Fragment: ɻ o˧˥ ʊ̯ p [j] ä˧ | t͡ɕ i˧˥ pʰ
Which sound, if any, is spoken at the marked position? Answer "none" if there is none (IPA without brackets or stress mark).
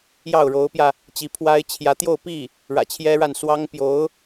j